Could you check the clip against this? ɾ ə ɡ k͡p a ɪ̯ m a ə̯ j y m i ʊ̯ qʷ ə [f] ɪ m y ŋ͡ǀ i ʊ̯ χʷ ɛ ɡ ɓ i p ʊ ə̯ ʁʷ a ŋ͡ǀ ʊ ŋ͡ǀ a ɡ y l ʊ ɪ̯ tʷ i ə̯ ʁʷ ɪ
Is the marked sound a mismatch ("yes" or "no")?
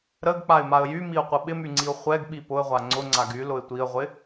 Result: yes